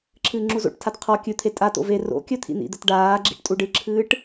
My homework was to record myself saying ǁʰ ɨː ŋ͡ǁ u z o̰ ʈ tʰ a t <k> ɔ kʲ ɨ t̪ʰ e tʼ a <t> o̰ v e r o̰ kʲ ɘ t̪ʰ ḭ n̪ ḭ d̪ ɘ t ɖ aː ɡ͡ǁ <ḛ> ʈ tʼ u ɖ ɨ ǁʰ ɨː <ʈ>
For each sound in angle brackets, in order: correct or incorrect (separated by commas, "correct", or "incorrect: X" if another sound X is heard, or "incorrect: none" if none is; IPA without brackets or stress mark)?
incorrect: qʰ, correct, incorrect: ḭ, correct